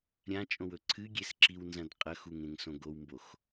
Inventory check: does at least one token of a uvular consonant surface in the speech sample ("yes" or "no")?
yes